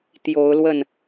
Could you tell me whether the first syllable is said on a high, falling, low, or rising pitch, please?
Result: rising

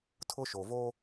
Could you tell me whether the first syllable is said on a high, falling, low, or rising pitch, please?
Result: high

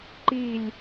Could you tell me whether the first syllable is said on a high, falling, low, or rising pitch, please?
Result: falling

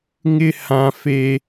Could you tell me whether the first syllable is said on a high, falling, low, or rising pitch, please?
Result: high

